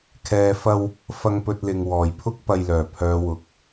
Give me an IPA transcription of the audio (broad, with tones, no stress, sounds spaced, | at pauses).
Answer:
kʰ ɛː˨ f ɐ˧ w | f ɐ˧ ŋ p ɵ˧ t̚ l ɪ˨ ŋ w ɔː˨˩ j pʰ ʊ˥ k̚ p ɐ˧ j l œː˨˩ pʰ œː˨˧ w ʊ˨˥ k̚